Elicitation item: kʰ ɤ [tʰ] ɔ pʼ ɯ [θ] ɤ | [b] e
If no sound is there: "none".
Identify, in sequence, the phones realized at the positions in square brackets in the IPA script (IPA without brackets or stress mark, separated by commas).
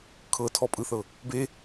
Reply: tʰ, θ, b